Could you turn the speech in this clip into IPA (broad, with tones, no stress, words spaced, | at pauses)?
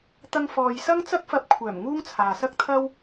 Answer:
t̪ɐ˧ŋfɔː˨j sɐ˥ŋt͡sɐ˥k̚fɐ˧p̚kʷʰœː˨˩m ŋuː˥ŋt͡sʰaː˨sɐ˥k̚t̪ʰɐ˥w